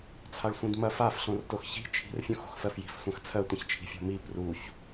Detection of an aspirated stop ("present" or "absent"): present